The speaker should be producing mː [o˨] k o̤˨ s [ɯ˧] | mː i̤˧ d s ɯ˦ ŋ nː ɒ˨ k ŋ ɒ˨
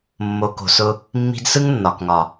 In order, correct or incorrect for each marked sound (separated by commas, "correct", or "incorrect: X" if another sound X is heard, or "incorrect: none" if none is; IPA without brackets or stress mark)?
correct, incorrect: ʊ˧